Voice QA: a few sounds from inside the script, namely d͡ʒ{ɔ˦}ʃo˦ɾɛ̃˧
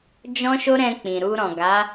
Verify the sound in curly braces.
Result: incorrect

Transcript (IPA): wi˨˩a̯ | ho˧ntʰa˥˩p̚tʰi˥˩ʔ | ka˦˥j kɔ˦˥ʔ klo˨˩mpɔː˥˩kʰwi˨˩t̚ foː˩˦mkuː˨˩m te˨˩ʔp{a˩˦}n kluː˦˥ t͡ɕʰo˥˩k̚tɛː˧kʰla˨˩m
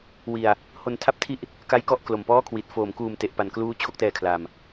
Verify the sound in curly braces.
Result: incorrect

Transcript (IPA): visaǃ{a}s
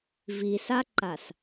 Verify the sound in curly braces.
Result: correct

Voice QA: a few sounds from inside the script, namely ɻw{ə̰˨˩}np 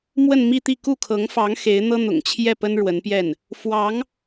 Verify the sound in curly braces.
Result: incorrect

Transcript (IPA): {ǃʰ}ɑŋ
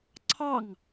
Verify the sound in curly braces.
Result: incorrect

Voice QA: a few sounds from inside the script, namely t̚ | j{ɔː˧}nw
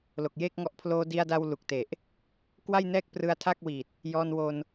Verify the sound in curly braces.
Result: correct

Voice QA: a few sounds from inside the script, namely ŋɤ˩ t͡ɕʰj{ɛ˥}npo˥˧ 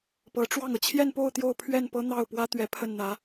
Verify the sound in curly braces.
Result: incorrect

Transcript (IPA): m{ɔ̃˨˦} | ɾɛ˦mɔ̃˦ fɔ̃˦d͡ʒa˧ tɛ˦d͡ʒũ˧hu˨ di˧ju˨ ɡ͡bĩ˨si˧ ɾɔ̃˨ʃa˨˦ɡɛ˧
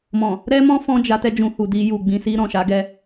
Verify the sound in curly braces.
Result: incorrect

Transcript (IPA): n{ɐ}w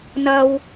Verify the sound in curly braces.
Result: correct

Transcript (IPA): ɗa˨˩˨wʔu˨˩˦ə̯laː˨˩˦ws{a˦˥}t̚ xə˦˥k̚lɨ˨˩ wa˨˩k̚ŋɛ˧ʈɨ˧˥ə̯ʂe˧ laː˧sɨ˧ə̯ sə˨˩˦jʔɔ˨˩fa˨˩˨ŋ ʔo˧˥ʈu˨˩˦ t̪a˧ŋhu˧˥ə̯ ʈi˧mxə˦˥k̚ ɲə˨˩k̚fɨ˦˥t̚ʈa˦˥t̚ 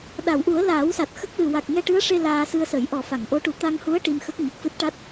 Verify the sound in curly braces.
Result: incorrect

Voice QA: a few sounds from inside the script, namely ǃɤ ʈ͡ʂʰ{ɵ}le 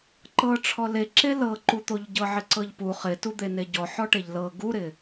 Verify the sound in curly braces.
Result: incorrect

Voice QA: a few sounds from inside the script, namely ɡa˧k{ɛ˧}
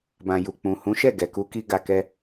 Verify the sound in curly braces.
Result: incorrect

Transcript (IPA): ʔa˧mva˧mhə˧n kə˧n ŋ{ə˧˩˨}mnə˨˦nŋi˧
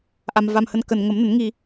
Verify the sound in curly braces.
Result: incorrect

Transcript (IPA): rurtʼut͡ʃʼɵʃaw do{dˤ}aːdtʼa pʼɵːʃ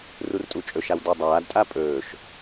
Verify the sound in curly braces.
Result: correct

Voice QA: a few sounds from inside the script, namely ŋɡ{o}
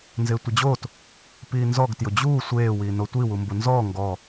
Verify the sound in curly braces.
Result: incorrect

